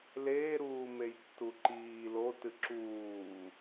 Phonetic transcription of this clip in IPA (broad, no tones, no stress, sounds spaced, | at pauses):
l eː ɾ uː m e j tː u ǃ iː l o t ɨ ǁ uː